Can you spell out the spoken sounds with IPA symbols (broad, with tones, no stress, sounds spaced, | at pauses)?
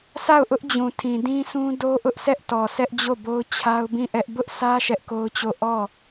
sʰ a˦˨ ʊ̯ ʔ ʊ˦ ʔ d͡ʑ ũ˨ tʰ ĩ˨ d ĩ˦ sʰ ũ˦ d o˦ ʔ ʊ˦ ʔ s ɛ˦ ʔ t ɔ˨ sʰ ɛ˦ ʔ d͡ʑ o˦˨ b o˦ ʊ̯ t͡ɕʰ a˦ ʊ̯ b ĩ˦˨ ʔ ɛ˦ ʔ b ʊ˦ ʔ sʰ ä˦ ʃ ɛ˦ ʔ k o˦ ʊ̯ t͡ɕ o˦˨ ʔ ɔ˦˨